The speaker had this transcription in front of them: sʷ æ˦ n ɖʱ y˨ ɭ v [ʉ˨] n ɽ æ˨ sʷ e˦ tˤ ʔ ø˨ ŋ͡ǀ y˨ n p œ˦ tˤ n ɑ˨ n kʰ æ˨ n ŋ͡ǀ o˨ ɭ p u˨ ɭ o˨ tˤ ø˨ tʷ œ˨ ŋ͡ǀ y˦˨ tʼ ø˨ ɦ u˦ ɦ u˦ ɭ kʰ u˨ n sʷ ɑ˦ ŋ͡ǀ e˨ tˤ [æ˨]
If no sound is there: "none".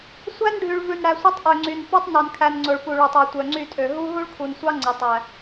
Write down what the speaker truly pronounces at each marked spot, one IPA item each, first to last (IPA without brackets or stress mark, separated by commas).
ʉ˨, æ˨